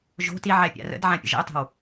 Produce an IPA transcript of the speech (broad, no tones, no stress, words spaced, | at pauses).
ʒo̤ tiʕɛ pʲa̰rə̰dʕã pʲə̰ʒə̰ʊ̯tˤe̤w